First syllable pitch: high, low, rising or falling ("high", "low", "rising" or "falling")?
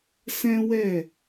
high